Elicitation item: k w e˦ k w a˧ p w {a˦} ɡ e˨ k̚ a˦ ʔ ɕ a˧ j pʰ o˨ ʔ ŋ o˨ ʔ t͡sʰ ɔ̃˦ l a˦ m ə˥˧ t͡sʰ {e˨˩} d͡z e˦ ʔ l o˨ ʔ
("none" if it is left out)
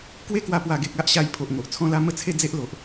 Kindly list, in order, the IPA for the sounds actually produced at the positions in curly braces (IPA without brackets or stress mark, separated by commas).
a˨˩, e˥˧